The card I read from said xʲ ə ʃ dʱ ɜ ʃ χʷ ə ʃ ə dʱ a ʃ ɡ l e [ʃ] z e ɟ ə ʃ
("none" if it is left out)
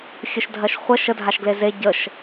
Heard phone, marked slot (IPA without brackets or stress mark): none